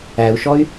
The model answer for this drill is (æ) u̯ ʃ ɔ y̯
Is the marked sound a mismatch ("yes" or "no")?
no